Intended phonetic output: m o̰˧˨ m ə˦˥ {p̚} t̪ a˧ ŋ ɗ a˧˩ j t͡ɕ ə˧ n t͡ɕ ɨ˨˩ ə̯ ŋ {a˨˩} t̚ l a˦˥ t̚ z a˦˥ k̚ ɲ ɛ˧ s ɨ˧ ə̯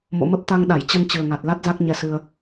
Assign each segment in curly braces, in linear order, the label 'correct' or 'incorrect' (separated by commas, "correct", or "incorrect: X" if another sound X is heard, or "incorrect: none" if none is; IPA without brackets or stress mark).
correct, correct